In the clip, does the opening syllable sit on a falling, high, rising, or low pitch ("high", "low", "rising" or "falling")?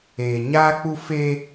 low